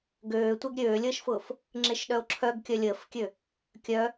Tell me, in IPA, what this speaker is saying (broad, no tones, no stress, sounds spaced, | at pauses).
ɡ øː tʷ e ɡ ɾʲ øː lʲ əː ʃ f ʊː f | ŋ͡ǁ e ʃ ɗ œ o̯ ǁʰ œ ɡ kʲ œ lʲ əː f kʲ ø | kʲ œ